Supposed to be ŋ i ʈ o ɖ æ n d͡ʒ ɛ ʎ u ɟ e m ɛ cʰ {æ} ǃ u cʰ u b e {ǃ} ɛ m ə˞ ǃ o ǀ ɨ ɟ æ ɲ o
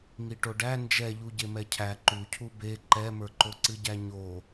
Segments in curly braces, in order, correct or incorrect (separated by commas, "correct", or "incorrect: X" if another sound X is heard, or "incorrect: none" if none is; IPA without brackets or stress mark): correct, correct